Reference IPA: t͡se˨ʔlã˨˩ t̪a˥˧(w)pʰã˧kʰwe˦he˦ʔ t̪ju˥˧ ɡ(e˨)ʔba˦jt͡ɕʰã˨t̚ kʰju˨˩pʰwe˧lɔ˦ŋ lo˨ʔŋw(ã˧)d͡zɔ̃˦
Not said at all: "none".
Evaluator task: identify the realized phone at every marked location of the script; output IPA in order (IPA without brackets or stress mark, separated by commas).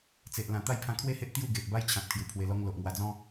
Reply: j, e˨, a˧